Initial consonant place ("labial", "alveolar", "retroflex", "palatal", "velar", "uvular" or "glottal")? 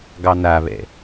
velar